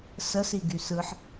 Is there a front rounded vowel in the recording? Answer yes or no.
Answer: yes